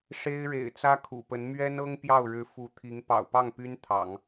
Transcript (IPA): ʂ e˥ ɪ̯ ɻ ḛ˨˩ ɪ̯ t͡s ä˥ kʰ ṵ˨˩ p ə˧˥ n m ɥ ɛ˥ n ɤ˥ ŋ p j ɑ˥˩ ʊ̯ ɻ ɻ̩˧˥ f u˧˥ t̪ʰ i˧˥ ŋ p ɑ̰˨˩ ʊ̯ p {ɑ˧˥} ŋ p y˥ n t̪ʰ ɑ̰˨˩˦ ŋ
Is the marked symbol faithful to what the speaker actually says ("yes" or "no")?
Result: no